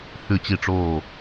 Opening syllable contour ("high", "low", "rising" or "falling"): falling